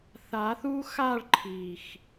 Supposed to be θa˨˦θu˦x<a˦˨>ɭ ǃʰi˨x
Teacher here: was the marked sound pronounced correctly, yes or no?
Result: yes